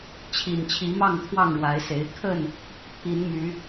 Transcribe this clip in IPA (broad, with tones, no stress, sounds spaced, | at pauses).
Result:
t͡ɕʰ i˨˩ n t͡ɕʰ i˨˦ m ɑ˥˨ ŋ t̪ʰ w ɑ˥˨ ŋ ɻ w a˨˦ ɪ̯ s e˨˦ ɪ̯ kʰ ə˥˨ n | pʰ i˨˦ n m y˨˦